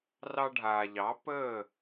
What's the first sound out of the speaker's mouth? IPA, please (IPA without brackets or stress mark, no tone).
r